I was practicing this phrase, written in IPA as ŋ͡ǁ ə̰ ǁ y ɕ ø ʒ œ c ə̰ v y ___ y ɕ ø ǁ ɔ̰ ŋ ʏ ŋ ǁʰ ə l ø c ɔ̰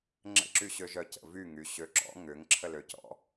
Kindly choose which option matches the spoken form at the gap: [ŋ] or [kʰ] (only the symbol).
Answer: ŋ